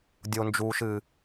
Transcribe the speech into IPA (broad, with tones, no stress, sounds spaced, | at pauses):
dʲ o˨ n d͡ʒ uː˨ ʃ ɨ˨